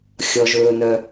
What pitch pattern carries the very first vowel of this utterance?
low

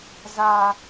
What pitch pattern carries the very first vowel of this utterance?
high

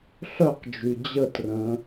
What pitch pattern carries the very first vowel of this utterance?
falling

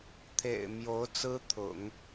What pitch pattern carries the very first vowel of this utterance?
low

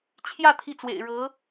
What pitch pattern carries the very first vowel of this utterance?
falling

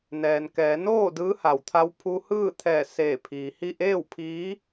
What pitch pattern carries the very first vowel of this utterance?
low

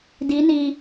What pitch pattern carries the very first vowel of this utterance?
rising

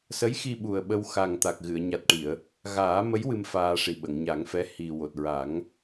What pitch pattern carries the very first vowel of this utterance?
rising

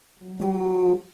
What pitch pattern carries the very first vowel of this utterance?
low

